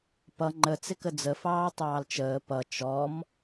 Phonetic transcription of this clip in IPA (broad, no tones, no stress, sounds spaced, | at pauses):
p ʌ ŋ͡ǃ ə t͡s ɪ k ə d͡z ə f ɑː tˤ ɑː l t͡ʃ əː p ʌ t͡ʃ ɔ m